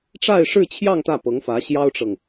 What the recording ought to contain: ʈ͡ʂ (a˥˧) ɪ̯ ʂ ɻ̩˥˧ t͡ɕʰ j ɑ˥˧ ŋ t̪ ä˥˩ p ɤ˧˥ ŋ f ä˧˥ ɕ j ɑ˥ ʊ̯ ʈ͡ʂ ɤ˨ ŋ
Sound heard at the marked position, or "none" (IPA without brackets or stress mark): a˥˧